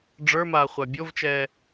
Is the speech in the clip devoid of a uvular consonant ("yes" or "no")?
no